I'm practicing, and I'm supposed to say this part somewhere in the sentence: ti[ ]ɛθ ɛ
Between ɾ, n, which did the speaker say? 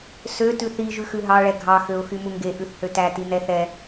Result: n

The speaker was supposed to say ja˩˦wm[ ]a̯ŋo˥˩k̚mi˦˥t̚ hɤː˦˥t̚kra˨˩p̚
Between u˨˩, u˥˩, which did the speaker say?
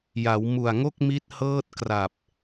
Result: u˨˩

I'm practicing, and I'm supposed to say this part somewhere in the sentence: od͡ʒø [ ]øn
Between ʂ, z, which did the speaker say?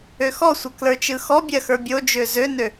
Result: z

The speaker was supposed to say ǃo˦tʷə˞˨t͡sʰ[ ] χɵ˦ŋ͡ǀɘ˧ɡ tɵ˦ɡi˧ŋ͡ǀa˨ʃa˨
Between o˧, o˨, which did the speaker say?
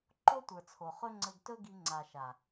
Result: o˨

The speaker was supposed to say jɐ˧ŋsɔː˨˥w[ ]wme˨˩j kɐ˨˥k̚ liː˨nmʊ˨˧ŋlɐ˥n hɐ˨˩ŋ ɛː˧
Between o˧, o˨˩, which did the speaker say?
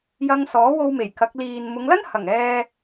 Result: o˧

